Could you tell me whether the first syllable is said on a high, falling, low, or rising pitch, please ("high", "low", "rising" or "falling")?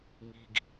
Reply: low